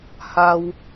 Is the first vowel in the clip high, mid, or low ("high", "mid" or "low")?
low